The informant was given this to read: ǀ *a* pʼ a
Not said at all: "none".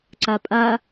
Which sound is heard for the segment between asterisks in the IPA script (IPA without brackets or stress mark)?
a